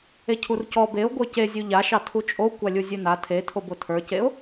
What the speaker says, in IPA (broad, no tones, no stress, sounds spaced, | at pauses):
e cʰ u r c ɔ b e ʊ̯ ɡʷ ə˞ c e zʲ ʉ ʎ a ʃ ɑ tʰ u t͡ʃʼ o kʷ a lʲ u zʲ ʉ n a tʰ e tʰ o b o tʰ ə˞ c e ʊ̯